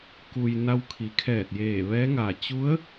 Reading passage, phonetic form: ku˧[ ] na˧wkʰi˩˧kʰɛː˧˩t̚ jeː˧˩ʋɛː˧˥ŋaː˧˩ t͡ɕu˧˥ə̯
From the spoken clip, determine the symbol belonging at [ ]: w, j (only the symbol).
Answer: j